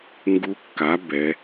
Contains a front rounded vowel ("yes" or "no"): no